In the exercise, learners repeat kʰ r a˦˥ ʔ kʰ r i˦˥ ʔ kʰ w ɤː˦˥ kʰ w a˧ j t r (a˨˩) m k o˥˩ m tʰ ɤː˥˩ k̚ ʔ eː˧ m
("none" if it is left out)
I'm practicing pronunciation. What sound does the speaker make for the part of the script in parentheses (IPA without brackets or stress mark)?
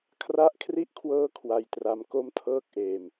a˧